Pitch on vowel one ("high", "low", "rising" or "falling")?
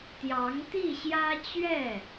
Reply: rising